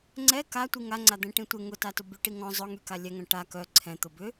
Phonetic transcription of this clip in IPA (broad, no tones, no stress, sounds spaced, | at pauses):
ŋ͡ǀ ɛ k a tʷ i ŋ a ŋ͡ǀ a d̪ ɛ̃ ʈ ĩ tʷ ɪ ŋ ʊ t a t ʊ b y ʈ i ŋ ɔ̃ zˤ ʊ ŋ y k a lʲ ɛ ŋ œ̃ ʈ a k œ ǀʰ ɛ̃ t̪ ʊ b ʏ